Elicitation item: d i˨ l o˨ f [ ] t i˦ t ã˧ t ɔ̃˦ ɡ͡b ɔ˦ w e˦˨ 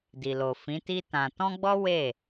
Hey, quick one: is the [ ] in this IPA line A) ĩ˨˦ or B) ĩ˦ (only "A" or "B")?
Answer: A